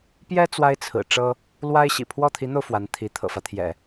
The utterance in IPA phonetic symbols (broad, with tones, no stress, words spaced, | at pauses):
pjɛ˥ t͡swa˥ɪ̯t͡sʰɹ̩˨˩ʈ͡ʂɤ˥ | lwa˥ɪ̯ɕḭ˨˩ pʰwɔ˥˩t̪ʰi˧˥n̪o˧ʊ̯ fwa˧˥nt̪ʰi˧˥ t̪ʰɤ̰˨˩fä˦t̪ʰjɛ̰˨˩˦